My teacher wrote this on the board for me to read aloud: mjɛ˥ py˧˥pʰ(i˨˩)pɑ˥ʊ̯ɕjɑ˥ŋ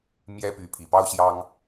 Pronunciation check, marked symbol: correct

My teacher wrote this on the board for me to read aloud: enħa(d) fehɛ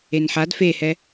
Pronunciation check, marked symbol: correct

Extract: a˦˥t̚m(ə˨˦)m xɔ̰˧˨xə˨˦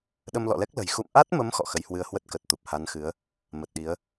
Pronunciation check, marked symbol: correct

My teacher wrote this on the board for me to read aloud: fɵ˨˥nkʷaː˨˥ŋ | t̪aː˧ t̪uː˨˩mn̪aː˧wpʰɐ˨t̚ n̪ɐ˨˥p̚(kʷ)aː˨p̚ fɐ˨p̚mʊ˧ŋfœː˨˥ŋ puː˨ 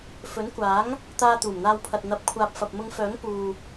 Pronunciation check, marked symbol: incorrect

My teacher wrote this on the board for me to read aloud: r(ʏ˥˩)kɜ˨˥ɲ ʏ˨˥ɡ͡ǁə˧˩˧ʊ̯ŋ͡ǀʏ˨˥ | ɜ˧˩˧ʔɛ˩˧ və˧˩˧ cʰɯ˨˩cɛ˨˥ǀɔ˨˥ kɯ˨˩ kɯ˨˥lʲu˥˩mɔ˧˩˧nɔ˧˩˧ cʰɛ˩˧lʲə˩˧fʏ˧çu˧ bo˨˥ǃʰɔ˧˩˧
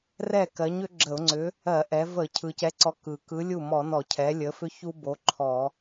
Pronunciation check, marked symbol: incorrect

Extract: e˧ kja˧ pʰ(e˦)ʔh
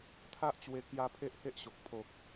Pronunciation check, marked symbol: correct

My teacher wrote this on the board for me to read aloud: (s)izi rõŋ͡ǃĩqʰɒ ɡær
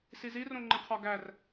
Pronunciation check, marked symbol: correct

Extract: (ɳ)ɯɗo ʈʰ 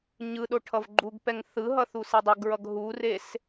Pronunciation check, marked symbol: incorrect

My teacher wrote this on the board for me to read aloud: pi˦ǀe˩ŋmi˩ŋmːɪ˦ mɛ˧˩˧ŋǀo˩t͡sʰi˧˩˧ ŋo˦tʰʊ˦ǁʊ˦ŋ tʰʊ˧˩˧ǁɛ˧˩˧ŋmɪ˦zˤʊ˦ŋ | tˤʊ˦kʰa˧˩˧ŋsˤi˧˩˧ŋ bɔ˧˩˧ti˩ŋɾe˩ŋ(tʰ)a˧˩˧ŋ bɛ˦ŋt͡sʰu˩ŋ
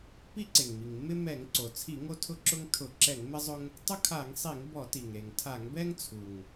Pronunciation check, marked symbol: correct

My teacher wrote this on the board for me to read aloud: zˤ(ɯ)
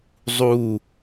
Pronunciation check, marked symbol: incorrect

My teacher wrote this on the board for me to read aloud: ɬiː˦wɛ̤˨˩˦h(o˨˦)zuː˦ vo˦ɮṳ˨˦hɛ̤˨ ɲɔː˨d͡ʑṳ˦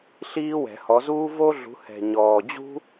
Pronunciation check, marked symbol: incorrect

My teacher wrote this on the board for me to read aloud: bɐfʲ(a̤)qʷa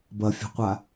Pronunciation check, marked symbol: correct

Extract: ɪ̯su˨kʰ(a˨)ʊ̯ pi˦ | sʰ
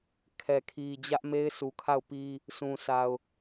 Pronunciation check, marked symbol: incorrect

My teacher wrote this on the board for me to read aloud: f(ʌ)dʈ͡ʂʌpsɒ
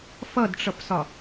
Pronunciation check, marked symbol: correct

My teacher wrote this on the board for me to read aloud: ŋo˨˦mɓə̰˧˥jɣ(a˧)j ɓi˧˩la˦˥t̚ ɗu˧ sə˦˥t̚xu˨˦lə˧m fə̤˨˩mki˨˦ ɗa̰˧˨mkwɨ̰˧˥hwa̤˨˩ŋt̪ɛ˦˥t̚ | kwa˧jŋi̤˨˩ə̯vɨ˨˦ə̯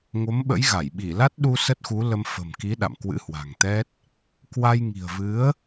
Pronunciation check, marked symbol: incorrect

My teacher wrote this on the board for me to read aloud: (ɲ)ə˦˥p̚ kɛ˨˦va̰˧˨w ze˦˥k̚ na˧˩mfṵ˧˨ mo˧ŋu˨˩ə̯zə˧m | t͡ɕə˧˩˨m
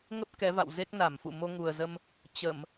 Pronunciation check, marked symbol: incorrect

